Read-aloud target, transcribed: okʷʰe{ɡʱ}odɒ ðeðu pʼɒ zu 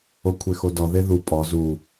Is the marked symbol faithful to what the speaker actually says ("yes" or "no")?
no